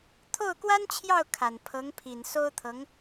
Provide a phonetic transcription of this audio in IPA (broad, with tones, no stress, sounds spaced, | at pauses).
t̪ʰ o˥˩ ʊ̯ k w a˥ n t͡ɕʰ j ɑ˥˩ ʊ̯ kʰ a˨˩ n pʰ ɤ˧˥ ŋ pʰ i˨˩ n s o˥ ʊ̯ t̪ʰ ɤ˧˥ ŋ